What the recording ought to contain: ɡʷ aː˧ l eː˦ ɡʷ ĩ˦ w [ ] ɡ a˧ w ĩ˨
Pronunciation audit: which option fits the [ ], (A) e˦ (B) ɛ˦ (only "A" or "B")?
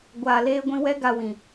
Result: B